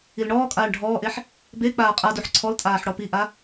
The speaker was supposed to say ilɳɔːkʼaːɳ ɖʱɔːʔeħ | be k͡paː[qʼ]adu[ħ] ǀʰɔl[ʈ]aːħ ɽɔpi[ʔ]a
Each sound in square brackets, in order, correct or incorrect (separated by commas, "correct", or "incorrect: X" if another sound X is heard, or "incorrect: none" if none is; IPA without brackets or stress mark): correct, correct, incorrect: tʼ, correct